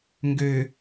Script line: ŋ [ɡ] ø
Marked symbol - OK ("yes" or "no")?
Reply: yes